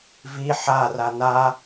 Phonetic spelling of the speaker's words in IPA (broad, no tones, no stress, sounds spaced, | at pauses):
v i ħ a r a n a